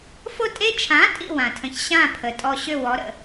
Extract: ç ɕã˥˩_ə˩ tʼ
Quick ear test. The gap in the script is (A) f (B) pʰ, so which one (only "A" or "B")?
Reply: B